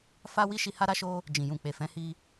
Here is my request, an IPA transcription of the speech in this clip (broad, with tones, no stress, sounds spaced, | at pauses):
f a˦ w i˦ ʃ i˧ h a˦ ɾ a˦ ʃ o˦ | d͡ʒ ĩ˨ j ũ˨ k͡p e˨ f ɛ̃˨˦ h i˧